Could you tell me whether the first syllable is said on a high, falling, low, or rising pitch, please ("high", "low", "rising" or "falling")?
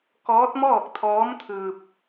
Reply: rising